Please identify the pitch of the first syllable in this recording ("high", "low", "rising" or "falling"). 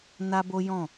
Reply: high